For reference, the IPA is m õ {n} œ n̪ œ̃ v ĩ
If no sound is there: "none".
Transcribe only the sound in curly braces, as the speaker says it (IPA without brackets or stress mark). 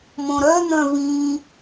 ɾ